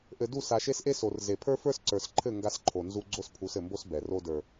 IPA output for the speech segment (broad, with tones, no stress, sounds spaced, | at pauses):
ʔ ɘ˨ d u˦˨ s a˨ ʃ e˦ s ʔ e˦ s o˨ r z e˨ pʰ ə˞˦ f ə˞˦ s ǀ ə˞˨ s ǃʰ ɘ˦˨ ŋ ɡ a˦ s ǃʰ o˨ n z u˦ ɡ͡ǀ o˦ s pʰ u˨˦ s ɘ˨ m b o˦ s b ɛ˨ r o˦ d ə˞˨